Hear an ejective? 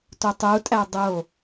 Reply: yes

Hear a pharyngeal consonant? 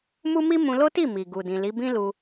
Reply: no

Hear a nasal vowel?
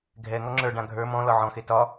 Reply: yes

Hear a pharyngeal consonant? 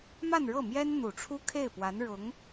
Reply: no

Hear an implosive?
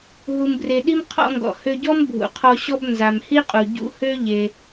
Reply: yes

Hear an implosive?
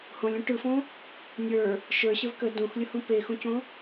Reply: no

